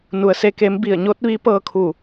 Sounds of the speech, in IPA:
n u˩˧ ə̯ s e˧ k e˧˥ m b i˧˩ ə̯ ɲ o˧˥ t̚ ʋ i˧˥ p ɤː˧ kʰ u˧˩

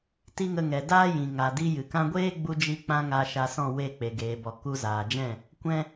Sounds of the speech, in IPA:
t i˦ ŋ ə˧ ŋ ɛ˨ d aː˦ j ĩ˨ ŋ a˨ d i˧ j ɨ˨ k ã˦ ɡʷ eː˦ ɡ͡b u˧ d͡ʒ i˧ k͡p ã˧ ŋ a˧ ʃ a˧ s ɔ̃˦˨ w e˦˨ k͡p e˨ ɡ eː˨ b ɔ˨ k u˧ z aː˨ d͡ʒ ɛ̃˦˨ | kʷ ɛ̃˦

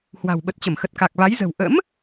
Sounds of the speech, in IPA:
h w a̤˨˩ w ɓ ə˨˩ t̚ t͡ɕ ə˧˩ m x ə˨˩ t̚ k a˨˩ k̚ v a˨˦ j z ə̤˨˩ w ʔ ə̰˧˥ m

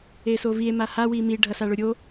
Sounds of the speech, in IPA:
e s o v i e̯ m a h a w i m i ɖʱ ɐ s a ɭ ʊ ɾʲ o

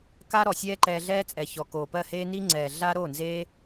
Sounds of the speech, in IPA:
k a˦ ɾ ɔ˨ sʲ ɛː˦ ǃ ɛː˧ ɮ ɛː˦ t͡sʼ ɛ˨ ç ɔ˨ k oː˨ p ɜ˦˨ h eː˦ n i˦ ŋ͡ǀ ɛː˨ ɮ a˦ ɾ o˦˨ n z eː˦

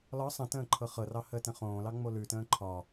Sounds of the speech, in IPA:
l ɒ sˤ ə̃ t ə̃ː ǃʰ ɤ χ ɤ r ɑ h əː t ə̃ χ õː l ɑ ŋ͡m o l ʉ t ə̃ː ǃʰ ɒ

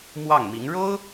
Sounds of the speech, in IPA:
m w ɑ˥˩ ŋ m i˧˥ ŋ ɻ o˥ ʊ̯

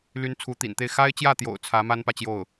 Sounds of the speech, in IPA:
l y˧˥ n t͡sʰ u˧˥ t̪ ḭ˨˩ n t̪ e˥˩ ɪ̯ x a˥ ɪ̯ t͡ɕ j ä˥˩ t̪ j o̰˨˩ ʊ̯ t͡sʰ ä˧˥ m a˥ n p ä˨ t͡ɕ j o˥˩ ʊ̯

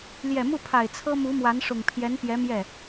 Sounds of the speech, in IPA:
l j ɛ˨˩ m u˥˩ pʰ a˨˩ ɪ̯ t͡sʰ ɤ˥ m u˧˥ m w a˧˥ n ʂ ʊ˨˩ ŋ pʰ j ɛ˧˥ n p j ɛ˧˥ m j ɛ˥˩

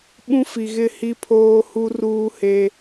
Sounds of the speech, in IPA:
ɓ ũ˦ f i˨ ɣ ɪ˦˨ h i˦ pʰ oː˦ h u˦ r uː˦ h e˦

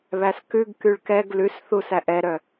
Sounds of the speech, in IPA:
β æ s k ʉ ɡ k y ɭ k ɛ ɡ l ʉ s θ u s æ ʔ ɛ ɾ œ

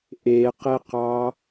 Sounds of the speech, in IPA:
ʔ e q e q ɑ

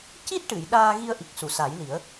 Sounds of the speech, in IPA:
c i˦˥ t̚ ʈ ɨ˨˩˨ j ɗ aː˧ ɣ i˧ ə̯ ʔ i˨˩ k̚ s u˨˩˨ s a˨˩˦ j l i˨˩˦ ə̯

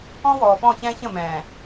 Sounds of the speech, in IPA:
ɔ̃˦ w ɔː˨ f ɔ̃˦˨ ç ɛ̃ː˦ ç ə̃˦˨ m ɛ̃ː˨

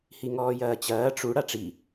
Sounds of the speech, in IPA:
h i ŋ ɔː j ɐː t͡ɕ ɐː ʈ͡ʂ u ɽ a ʈ͡ʂ i

